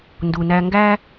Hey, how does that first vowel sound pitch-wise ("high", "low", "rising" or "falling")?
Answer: low